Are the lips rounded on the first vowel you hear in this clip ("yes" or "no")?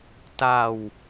no